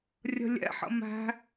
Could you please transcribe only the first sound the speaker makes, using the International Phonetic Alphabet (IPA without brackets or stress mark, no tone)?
rʲ